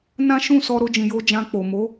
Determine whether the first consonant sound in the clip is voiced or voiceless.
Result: voiced